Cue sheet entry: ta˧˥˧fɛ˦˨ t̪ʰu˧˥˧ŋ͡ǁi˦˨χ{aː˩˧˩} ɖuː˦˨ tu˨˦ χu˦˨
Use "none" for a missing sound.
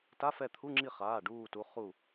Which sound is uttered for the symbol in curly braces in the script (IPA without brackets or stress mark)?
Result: aː˩˧˩